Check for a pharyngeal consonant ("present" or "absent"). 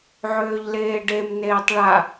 present